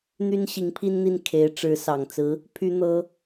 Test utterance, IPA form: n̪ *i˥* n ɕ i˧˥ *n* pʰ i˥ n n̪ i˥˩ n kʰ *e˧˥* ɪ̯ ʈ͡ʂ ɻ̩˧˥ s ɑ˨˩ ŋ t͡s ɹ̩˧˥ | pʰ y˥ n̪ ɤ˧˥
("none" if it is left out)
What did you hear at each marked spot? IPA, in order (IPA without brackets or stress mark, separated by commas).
y˥, ŋ, e˧˥